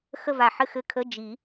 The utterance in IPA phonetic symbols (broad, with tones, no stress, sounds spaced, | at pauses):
x ə˥˧ v a˧˩ ħ ɘ˥˧ x ɘ˧˥˧ kʰ ə˧˥˧ d͡ʒ i˨˩˦